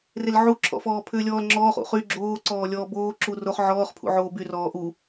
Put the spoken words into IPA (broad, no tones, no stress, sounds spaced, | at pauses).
r e l ʕ u ǁʰ ɔ̰ f ɔː pʰ ʏː lʲ ɔː l ŋ͡ǁ ɔː χ ṵ χ y ɡ͡ǁ oː ǀ ɔː lʲ ɔː b oː ǁ u r o χ ʕ ɔː χ pʰ ṵ ʕ oː b y r ɔː ʔ u